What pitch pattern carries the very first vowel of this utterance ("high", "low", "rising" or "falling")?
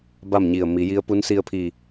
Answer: falling